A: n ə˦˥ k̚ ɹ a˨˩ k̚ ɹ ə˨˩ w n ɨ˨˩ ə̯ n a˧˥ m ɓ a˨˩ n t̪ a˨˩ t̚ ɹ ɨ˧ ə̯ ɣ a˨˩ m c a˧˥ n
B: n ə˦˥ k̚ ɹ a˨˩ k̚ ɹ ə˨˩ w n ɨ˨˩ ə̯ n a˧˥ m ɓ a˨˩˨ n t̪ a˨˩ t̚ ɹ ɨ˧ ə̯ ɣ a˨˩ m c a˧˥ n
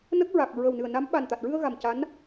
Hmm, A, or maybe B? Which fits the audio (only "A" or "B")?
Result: A